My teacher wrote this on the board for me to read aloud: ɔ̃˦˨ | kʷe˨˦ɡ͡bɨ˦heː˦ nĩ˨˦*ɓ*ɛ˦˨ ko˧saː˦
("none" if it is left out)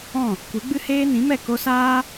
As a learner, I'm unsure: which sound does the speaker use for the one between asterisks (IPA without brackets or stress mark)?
m